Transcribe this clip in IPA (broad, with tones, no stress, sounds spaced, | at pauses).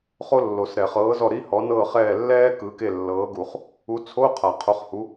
χ o˥ lː o˨˩˦ s ɾ ɛ˨˩˦ χ ɤː˨˥ z ɔ˦˨ ɾ i˧˥˧ h ɔ˨˥ n ɤː˦˨ χ ɛː˦˨ lː ɛː˥ k ɯ˨˥ k e˦˨ lː ɤː˨˥ ɡ u˨˩˦ χ | u˨˥ t͡sʰ o˧˥˧ qʰ a˨˩˦ qʰ o˨˥ χ h u˨˥